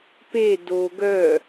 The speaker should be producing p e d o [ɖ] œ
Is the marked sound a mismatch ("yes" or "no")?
yes